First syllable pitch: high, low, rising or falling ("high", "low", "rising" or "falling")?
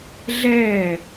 falling